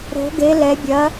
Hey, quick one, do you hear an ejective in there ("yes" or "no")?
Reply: no